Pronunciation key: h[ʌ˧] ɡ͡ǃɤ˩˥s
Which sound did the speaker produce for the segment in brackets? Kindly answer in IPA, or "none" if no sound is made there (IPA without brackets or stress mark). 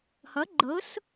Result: ʌ˩˥